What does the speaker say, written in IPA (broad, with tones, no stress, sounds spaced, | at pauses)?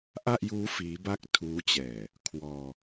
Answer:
ʔ a˥˩ ʔ j uː˦˥ f iː˦˥ b a˥˩ k̚ tʰ uː˦˥ t͡ɕ ɛː˨˩ | kʰ w ɔː˧